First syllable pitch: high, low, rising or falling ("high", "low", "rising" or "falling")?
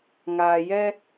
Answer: low